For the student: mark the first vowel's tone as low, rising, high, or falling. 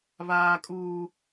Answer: high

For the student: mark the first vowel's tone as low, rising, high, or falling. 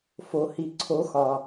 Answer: low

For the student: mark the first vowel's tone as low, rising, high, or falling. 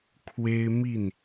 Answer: high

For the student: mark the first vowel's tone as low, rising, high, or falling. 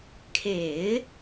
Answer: low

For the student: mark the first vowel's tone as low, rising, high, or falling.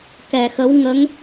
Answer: low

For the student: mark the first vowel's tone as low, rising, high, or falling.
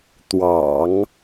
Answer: low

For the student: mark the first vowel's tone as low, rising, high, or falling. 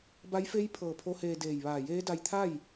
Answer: rising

